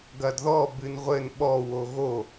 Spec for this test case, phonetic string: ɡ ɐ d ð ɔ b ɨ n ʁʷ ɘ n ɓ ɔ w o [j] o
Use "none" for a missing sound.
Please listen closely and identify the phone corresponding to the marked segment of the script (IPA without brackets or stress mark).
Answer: ɣ